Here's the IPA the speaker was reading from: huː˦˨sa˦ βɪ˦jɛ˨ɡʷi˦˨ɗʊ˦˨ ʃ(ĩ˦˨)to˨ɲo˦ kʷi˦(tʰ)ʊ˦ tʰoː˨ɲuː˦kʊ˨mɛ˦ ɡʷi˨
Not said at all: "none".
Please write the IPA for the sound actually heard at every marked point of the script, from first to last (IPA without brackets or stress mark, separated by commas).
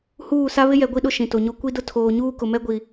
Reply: ĩ˨, d